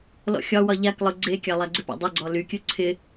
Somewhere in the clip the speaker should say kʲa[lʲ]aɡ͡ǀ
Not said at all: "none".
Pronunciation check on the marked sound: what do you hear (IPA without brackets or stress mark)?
lˠ